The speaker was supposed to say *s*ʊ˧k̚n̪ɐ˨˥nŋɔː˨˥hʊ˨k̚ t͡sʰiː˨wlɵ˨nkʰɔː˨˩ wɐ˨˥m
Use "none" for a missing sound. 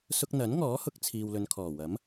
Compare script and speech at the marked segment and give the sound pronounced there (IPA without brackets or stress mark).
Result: s